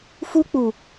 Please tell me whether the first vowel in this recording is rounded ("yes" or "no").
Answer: yes